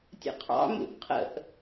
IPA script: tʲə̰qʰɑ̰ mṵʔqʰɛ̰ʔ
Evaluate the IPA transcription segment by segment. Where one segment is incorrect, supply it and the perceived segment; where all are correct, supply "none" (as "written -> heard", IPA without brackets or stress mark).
ɛ̰ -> ə̰